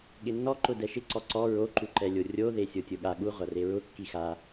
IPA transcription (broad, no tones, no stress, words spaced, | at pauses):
ɠɪnːɔ ǃʊdɛʃɪ ǀɔǀɔ ɹo ǃuǃɛlʲorʲo ðesʲotʲʊɠa ɠu ʁʷareɹʊ kːixa